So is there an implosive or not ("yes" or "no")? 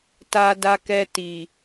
no